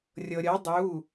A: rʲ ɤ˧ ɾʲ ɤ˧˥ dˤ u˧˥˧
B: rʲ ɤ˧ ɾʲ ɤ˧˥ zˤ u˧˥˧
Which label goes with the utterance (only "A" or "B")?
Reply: A